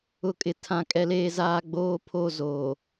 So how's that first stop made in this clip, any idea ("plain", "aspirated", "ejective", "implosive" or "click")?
ejective